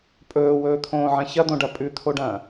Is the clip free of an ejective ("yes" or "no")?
no